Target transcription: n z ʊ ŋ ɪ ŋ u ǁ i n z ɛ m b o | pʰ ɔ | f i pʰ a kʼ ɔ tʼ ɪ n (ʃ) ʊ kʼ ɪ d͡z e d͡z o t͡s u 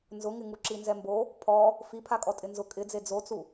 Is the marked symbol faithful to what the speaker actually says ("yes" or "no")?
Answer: no